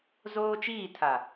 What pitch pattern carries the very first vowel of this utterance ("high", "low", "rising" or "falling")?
high